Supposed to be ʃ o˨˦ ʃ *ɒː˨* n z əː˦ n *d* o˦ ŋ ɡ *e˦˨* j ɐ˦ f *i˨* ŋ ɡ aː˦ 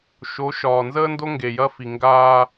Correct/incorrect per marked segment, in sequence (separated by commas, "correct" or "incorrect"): correct, correct, incorrect, correct